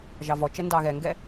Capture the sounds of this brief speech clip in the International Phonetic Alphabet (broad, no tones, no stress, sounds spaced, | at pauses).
ʒ ɑ v ɔ t͡ʃ ɛ n d ɑ ɣ ɛ ŋ ɡ ɛ